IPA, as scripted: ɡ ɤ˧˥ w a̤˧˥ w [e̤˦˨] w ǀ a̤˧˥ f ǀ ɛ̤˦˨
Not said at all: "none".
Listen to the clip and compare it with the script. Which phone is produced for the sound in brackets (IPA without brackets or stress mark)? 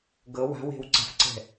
e̤˦˨